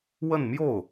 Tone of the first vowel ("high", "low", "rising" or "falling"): falling